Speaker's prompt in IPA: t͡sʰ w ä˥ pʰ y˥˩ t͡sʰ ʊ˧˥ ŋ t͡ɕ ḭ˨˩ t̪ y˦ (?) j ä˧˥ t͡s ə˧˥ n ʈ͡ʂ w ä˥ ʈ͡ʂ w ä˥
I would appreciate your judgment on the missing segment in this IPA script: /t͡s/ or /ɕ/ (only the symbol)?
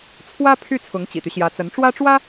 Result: ɕ